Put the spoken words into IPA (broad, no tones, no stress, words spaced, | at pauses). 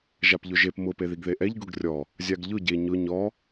ʒapʎʊʒep mʊ peðiɡðeʔɛʎ ɡʊɡrʲɔ | zʲaɡʎʊ ɟe ɲʊ ɲɔ